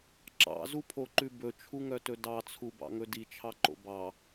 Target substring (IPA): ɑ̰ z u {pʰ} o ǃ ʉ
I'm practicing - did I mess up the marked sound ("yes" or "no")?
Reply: no